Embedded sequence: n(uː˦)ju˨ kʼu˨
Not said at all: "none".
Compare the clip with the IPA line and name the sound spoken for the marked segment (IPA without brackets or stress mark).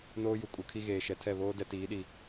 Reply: oː˦